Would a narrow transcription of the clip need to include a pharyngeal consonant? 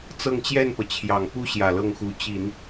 no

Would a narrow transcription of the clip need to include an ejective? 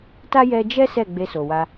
no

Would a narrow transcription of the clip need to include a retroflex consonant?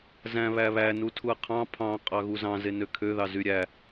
no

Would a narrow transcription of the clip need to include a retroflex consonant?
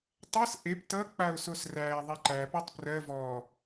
no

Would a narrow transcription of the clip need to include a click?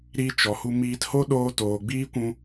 no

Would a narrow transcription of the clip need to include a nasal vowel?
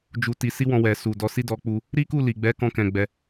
yes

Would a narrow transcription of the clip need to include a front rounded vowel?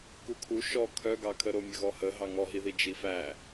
yes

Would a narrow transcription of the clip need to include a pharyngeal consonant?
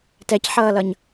yes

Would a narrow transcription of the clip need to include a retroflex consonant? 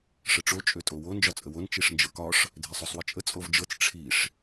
yes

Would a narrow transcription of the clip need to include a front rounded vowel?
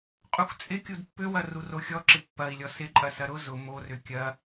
yes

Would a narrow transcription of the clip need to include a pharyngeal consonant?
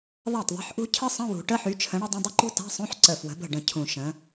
yes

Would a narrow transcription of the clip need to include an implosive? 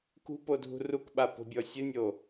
yes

